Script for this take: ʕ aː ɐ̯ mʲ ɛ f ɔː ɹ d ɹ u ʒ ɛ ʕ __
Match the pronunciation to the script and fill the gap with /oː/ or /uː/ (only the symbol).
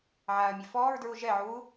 uː